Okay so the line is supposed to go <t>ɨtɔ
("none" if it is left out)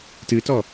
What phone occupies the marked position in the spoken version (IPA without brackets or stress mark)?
t